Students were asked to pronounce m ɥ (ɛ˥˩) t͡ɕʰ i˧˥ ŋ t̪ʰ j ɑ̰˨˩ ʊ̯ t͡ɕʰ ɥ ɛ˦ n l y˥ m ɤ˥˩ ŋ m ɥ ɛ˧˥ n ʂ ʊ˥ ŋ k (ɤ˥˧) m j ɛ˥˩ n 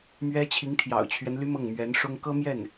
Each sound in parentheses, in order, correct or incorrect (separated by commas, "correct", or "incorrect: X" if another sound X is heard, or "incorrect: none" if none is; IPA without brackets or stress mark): incorrect: ɛ˥, incorrect: ɤ˥